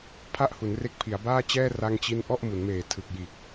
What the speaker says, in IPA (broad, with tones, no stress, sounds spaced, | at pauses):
pʰ a˥˩ ʔ h u˩˦ n r e˦˥ k̚ pʰ i˩˦ a̯ b aː˥˩ t͡ɕ ɛː˥˩ r a˥˩ ŋ t͡ɕ i˥˩ n ʔ ɔ˥˩ ʔ m u˩˦ n m eː˨˩ tʰ ɯ˨˩ k̚ j iː˨˩ k̚